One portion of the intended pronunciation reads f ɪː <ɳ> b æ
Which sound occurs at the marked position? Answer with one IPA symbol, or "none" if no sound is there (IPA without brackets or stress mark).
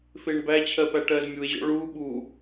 ɳ